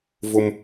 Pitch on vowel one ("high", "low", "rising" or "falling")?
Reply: high